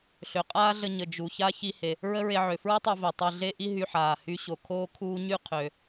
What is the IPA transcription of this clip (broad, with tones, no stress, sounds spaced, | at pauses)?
ɬ ø˩ qʼ aː˥ ɮ ə˧ ɲ ə˩ d͡ʒ u˩ ç a˥ ç i˧ h e˩ | ɹ ə˥ ɹ e˧ ʕ ø˩ f ɹ i˥ tˤ ø˧ v i˩ tˤ e˧ ɮ e˥ ʔ i˥ ɦ y˧ ħ aː˩ h y˧ ɕ o˩ kʰ oː˥ kʰ uː˥ ɲ y˥ qʰ ø˩